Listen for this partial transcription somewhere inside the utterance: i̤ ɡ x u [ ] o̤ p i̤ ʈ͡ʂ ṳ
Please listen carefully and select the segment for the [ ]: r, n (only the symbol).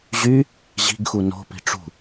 n